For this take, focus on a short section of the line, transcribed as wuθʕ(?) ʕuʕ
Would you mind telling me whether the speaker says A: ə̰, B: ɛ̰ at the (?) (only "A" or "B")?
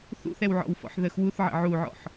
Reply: A